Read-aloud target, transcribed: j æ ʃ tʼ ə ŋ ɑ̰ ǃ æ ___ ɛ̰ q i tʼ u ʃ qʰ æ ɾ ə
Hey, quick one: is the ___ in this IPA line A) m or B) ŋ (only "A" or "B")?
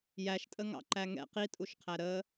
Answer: B